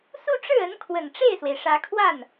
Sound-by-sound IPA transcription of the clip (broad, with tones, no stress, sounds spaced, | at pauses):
s u˥˧ ʈ͡ʂ ɻ̩˥˩ ə˧˥ n kʰ w ə˨˩ n ʈ͡ʂ e˥˩ ɪ̯ s w e˩ ɪ̯ ʂ ä˧˥ kʰ w a˥˩ n